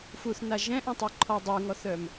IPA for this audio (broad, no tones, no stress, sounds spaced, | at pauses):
f u θ n a ʒ ɛ̃ ʔ ũ tˤ e ǃʰ ɔ dˤ u ŋ ɔ θ œ m